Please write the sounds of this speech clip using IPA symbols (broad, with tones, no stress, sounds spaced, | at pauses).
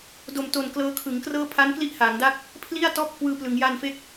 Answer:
d o˨˩ m t o˨˩ n k l ɤː˧ kʰ ɯ˩˦ ŋ k r ɤː˥˩ pʰ a˦˥ n k l i˥˩ ʔ h aː˩˦ ŋ d a˥˩ k̚ | pʰ l i˥˩ a̯ t ɔː˥˩ p̚ kʰ w ɯː˧ p l ɯ˩˦ ŋ j a˧ n f e˦˥ k̚